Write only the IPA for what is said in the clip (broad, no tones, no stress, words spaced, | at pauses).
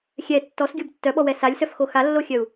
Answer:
xʲɛ tːɔsɡʲob tːœɓɔwɛ salʲsœfxo xalːoxʲœu̯